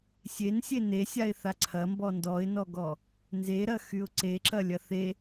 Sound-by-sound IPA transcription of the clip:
sʲ e n sʲ e n e sʲ a ɪ̯ θ a ǀʰ ɐ m b ɔ n d ɔ ɪ̯ n ɔ ɡ ɔ | n z e ɾ ɐ x y ʊ̯ ǀ e ǁ ɐ lʲ ɐ θ e

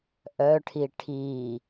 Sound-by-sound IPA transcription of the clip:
ʔ œ ʈʰ i ʈʰ i

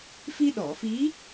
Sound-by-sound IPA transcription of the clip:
f i˧ ɗ ɔ˨˩˨ f i˧˥

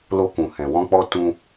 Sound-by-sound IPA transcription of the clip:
l o˧ k ũ˨ h ɛ̃˨ w ɔ̃˧ k͡p ɔ˧ t ũ˧

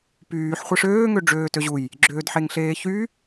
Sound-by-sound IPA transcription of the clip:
p yː ħ χʷ e ʂ øː ŋ ø ɖ͡ʐ øː t ø ʑ u j | ɡ͡ǁ øː d ħ e ŋ ɬ eː ç y

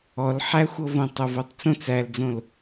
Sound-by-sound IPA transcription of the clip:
ɔ l ħ æ xʷ ɤ v õ tˤ o v o tˤ t͡s õ t͡s æ l d͡z õ l

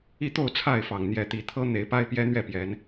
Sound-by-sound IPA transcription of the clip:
i˥˨ t̪ o˥˨ ʊ̯ t͡sʰ a˥˨ ɪ̯ f ɑ˨˩ ŋ n̪ j ɛ˨˦ t̪ i˨˦ t̪ʰ ɤ˦ n̪ e˨˦ ɪ̯ p a˦ ɪ̯ p j ɛ˦ n̪ ɥ ɛ˥˨ p j ɛ˨˦ n

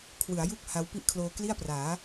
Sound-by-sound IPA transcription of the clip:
kʰ w ɯ˩˦ a̯ j u˥˩ k̚ h a˦˥ w p i˥˩ ʔ kʰ l oː˧ k l i˥˩ a̯ p r aː˩˦

